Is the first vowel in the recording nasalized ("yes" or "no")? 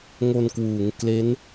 no